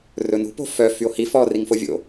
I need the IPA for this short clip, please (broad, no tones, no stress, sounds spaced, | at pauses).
r ɵ n ṳ p o̤ f œ f y o̯ h i f ɔ r i ŋ f o vʲ o̰